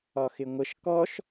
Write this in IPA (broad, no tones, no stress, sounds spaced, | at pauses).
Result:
ɒ x ɪ ŋʷ ə ʃ k ɔ ʃ